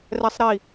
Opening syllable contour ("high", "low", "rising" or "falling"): low